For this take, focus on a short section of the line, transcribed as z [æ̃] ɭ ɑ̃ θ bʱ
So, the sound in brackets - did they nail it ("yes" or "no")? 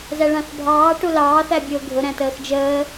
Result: no